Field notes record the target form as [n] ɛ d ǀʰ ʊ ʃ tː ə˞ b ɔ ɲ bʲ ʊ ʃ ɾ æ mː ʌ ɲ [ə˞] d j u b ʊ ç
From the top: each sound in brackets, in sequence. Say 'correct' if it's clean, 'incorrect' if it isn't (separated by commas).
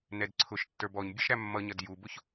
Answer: correct, incorrect